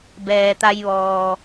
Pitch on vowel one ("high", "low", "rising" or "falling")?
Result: low